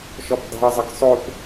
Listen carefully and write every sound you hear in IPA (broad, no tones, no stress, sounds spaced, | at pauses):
ʃ ɔ p dˤ ṳ ə̯ zˤ ə ɡ sˤ o p